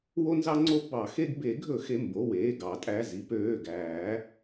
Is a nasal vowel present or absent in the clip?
absent